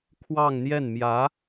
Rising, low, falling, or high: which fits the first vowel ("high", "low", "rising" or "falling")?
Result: falling